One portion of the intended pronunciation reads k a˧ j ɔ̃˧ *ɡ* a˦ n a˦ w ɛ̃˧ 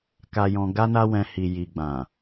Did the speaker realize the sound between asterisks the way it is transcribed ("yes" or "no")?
yes